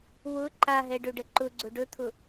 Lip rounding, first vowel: rounded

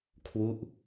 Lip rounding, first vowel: rounded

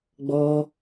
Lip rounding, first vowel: rounded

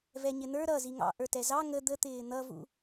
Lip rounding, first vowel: unrounded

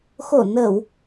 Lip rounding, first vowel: rounded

